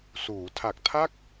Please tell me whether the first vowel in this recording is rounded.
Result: yes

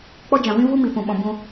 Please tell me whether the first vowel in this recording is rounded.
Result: yes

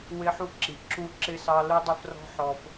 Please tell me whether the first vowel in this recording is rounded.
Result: no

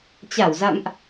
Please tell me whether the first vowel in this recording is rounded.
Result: no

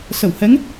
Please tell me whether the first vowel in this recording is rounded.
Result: no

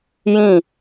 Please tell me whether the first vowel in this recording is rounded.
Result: no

